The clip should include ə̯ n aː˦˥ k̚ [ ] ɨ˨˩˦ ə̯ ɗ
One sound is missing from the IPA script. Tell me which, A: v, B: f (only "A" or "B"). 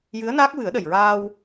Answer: A